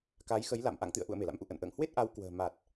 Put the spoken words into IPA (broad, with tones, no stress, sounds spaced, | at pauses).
k a˨˦ j x ə˨˦ j l a̰˧˨ m ʔ a̰˧˨ ŋ t̪ ɨ̰˧˨ ə̯ ʔ ṵ˧˨ ə̯ m e˧˩ l a̰˧˥ m ʔ ṵ˧˨ ʔ ə̰˧˨ n ʔ ə̰ː˧˨ ŋ h w e˦˥ t̚ ʔ a˨˦ w k w ə̤ː˨˩ m a˨˩ t̚